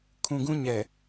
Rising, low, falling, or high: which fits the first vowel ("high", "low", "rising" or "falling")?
low